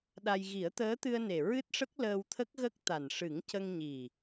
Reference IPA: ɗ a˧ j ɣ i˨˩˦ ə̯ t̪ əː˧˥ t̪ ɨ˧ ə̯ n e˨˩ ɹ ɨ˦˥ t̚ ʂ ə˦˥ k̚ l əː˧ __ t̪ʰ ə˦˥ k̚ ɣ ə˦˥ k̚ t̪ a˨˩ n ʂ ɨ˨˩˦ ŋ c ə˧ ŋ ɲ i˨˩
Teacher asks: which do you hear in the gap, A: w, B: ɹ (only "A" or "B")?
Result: A